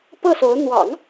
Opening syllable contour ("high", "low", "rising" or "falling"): falling